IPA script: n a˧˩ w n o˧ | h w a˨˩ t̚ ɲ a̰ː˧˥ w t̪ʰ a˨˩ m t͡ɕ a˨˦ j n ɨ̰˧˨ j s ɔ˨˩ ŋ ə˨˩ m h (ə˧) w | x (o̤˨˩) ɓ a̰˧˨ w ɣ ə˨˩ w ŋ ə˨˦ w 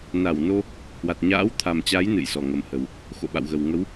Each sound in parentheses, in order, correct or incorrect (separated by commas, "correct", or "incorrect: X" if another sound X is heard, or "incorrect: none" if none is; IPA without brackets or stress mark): incorrect: ə˨˩, incorrect: o̰˧˨